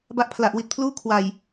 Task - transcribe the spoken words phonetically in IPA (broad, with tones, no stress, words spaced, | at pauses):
ba˦˥ʔpʰla˨˩ʔwi˨˩t̚pʰluː˥˩ kʰwa˨˩j